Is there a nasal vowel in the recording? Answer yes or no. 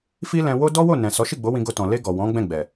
yes